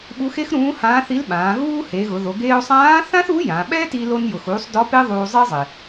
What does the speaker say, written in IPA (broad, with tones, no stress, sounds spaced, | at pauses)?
ɓ u˧˥ x e˥ x ɾ ũː˧˥ h ãː˧˥ θ i˧˥ l ɓ ãː˩˧ ɣ uː˥ h e˩˧ ɣ ʊ˩˧ ð o˩˧ ɡ eː˧ o̯ sˤ ãː˧˥ θ ã˥ θ u˧˥ j ã˩˧ ɓ ɛ˥ t i˧ l o˧ n j ʊ˩ x uː˩˧ sˤ d ɔ˧˥ p e˥ ðˤ uː˧ zˤ ɪː˥ zˤ ɪ˩